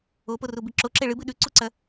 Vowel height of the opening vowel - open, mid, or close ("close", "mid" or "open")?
mid